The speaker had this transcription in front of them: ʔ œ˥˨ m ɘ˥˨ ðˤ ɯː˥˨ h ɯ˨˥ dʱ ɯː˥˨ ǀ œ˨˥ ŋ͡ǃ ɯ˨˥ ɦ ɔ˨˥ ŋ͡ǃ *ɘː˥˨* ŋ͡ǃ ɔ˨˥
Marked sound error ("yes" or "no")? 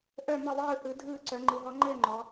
no